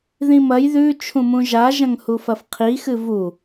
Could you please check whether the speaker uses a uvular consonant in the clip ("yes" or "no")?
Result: yes